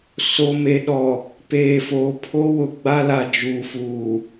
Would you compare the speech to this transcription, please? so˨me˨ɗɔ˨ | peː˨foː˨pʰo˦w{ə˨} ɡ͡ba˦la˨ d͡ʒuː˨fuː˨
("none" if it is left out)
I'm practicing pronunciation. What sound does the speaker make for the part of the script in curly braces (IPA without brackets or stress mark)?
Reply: ʊ˨